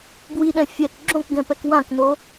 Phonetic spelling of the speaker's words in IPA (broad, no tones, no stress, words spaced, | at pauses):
bwiɗɛ̃ fʲɛk ɡ͡ǁõkɡɛ̃pɛk wãkno